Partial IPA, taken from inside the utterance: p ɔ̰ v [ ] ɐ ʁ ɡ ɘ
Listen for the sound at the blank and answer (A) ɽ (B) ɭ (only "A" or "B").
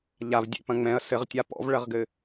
B